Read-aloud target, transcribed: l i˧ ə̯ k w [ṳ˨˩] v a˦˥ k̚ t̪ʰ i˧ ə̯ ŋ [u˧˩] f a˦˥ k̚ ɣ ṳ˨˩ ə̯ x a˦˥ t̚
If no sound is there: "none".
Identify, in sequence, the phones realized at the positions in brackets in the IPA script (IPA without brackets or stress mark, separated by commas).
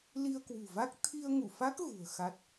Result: ṳ˨˩, u˧˩